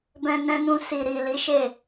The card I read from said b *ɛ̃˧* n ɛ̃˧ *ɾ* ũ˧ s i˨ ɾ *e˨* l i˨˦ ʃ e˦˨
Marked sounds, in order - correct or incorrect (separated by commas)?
correct, incorrect, incorrect